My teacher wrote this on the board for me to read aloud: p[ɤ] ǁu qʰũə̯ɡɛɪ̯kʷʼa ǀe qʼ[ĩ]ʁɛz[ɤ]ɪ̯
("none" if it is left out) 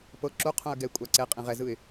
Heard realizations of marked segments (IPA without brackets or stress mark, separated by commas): ɤ, ĩ, ɯ